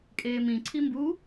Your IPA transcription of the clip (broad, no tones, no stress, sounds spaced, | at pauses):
kʼ eː m ĩ ǀʰ i m b u